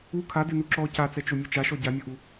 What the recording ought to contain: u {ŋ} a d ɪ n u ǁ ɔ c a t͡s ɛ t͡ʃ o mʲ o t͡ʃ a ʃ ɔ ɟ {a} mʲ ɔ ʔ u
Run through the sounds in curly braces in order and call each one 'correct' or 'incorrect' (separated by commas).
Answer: incorrect, correct